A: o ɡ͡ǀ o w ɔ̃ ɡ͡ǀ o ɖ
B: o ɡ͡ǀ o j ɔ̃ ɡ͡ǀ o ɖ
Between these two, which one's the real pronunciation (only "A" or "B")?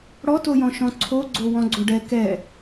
A